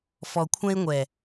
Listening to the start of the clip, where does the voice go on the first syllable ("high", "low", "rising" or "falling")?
low